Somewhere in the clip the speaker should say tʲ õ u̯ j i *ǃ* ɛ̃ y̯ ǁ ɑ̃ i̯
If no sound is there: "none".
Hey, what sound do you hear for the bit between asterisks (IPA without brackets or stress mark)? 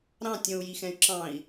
x